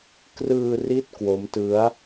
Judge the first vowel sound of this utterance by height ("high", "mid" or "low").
high